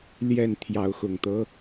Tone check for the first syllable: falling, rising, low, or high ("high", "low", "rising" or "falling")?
falling